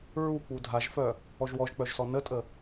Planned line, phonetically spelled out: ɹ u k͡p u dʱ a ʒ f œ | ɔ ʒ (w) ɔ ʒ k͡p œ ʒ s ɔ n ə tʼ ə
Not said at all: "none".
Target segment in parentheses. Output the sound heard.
w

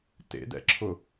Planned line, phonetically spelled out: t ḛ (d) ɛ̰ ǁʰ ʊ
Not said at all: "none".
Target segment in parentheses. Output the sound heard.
d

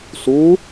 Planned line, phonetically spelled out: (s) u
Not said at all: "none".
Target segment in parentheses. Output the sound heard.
s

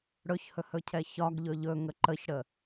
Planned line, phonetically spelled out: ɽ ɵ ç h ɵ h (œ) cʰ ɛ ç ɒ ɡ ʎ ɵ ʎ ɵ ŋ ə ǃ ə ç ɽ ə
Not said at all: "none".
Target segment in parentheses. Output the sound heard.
ɵ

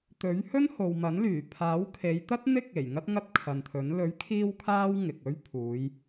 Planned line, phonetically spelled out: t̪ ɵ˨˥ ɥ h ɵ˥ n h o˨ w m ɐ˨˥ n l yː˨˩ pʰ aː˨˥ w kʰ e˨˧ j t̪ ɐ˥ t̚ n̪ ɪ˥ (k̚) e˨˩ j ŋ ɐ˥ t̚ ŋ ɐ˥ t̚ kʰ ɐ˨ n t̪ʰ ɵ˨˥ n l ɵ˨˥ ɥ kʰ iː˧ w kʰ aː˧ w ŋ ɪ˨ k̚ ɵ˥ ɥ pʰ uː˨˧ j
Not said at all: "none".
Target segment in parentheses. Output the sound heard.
k̚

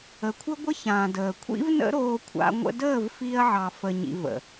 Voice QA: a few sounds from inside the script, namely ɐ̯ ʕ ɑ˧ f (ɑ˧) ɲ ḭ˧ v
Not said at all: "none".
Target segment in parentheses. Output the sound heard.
ə˧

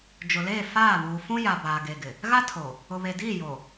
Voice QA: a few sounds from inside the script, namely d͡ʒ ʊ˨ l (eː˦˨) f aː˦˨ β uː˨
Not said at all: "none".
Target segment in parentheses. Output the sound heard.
eː˦˨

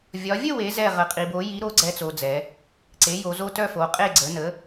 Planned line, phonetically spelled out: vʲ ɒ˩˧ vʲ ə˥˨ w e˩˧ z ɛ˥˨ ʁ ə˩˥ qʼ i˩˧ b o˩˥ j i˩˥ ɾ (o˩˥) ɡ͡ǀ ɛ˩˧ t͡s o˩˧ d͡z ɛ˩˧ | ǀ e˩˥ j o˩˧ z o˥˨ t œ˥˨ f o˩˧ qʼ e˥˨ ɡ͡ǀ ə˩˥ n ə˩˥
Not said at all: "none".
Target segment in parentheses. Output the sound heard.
o˩˥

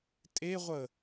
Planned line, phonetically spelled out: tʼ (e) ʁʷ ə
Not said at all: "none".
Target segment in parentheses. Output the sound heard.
e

